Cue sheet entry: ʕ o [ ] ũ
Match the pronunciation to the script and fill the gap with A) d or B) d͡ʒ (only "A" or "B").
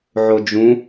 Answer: B